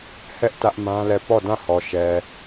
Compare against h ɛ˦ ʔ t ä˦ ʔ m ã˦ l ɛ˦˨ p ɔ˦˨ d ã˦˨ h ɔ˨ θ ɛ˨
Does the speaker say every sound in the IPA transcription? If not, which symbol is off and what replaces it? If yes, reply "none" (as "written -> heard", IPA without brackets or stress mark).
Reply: θ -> ʃ